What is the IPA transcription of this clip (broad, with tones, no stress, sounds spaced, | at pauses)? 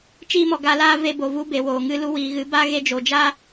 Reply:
t͡ʃ iː˦ m ɔ˨ ɡ a˧ l aː˦ v e˧ b o˨ v u˧ b e˨ w oː˨ ŋ ɨ˦ l u˧ w iː˨ ɣ ɨ˨˦ b a˦ ɣ e˧ d͡ʒ o˨ d͡ʒ a˦